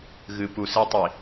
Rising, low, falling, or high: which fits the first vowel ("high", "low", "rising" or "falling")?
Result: low